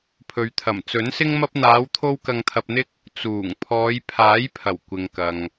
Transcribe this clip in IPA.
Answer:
pʰɵ˨ɥt̪ʰɐ˨˩mt͡sɵ˨˥nsɪ˥ŋ mɐ˧p̚n̪aː˨˧wt̪ʰo˧w kɐ˧ŋt̪ʰɐ˧p̚n̪ɪ˥k̚ | t͡suː˨˩ŋ pʰɔː˨˧jpʰaː˨˥jpʰɐ˨˩w kʷɪ˨ŋkɐ˨ŋ

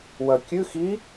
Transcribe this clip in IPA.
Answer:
wɐkʲʉ xi

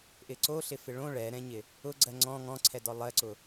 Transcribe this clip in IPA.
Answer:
ʔɪǀoɬɪ fɪɭõ ɭɛɾɛ̃ɲɪ | ʊɡ͡ǀɜ ŋ͡ǀɔ̃ ŋɔ̃ǀʰɛdɔ lˠɜǀʊ

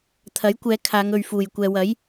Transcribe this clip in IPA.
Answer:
t̪ʰɐ˨˥jkʷɛː˨˧ kʰaː˨˧ŋɵ˨ɥfuː˨˩j kʷɛː˨wɐ˨˥j

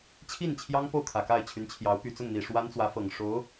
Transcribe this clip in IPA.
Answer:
t͡ɕʰi˥˩nt͡ɕʰjɑ˥ŋpo˥˩ʊ̯ kʰä˨˩ka˥˩ɪ̯t͡ɕʰy˧˥nt͡ɕʰjɑ˧˥ʊ̯ py˨˩t͡sʊ˥˩ŋn̪i˨˩ ʂwa˥nt͡swä˧˥fɤ˨˩ŋ ʂo˧˥ʊ̯

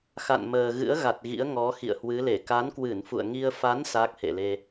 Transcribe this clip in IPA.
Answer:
xa̰˧˨nməː˨˩ɣɨ̰˧˥ə̯ ɣa˨˩t̚ɣḭ˧˥ə̯ŋɔ˨˦ xḭ˧˨ə̯hwɨ˨˦le˧˩ ka˨˦nkwɨ˧˩nfṵ˧˨ə̯ ŋi˧ə̯ fa˨˦n sa˦˥k̚hḛ˧˨le˧

